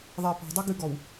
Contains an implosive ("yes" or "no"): no